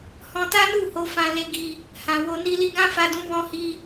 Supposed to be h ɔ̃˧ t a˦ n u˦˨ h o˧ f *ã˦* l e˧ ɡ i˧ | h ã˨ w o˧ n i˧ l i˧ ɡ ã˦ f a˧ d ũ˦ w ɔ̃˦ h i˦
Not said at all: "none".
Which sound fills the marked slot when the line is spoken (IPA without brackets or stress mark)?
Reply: ã˧